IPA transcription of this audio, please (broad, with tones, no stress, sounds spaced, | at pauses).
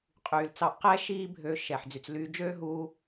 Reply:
qʼ yː˩ l t͡s ɑ˧ ʔ q ɛ˥ ʃ iː˥ bʱ ø˧ ʃ ɛː˩ ħ d͡z y˩ t͡s l yː˧ d͡ʒ øː˥ ɦ uː˧